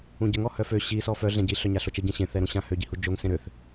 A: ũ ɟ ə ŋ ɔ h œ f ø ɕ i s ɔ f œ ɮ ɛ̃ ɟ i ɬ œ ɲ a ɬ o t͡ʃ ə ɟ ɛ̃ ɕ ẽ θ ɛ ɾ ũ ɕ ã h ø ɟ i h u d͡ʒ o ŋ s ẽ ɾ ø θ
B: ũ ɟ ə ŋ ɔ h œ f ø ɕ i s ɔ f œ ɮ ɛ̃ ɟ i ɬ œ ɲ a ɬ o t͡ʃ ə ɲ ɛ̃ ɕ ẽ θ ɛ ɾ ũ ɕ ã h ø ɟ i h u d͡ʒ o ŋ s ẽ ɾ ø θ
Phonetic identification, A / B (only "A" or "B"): A